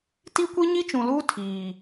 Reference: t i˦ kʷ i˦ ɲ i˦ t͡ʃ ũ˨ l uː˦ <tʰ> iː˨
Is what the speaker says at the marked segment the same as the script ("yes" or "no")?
yes